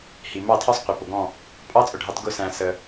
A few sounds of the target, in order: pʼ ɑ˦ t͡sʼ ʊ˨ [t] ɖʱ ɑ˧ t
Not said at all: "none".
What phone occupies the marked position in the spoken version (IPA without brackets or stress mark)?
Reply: none